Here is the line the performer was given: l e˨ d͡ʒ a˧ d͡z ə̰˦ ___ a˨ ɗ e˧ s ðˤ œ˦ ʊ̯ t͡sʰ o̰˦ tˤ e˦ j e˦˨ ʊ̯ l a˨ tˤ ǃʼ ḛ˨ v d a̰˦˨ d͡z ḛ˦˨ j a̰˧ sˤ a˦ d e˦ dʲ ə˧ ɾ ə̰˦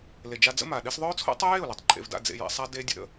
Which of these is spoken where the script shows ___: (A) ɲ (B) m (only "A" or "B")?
B